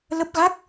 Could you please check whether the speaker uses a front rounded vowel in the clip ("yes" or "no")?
no